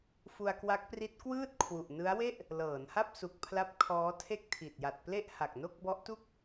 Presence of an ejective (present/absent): absent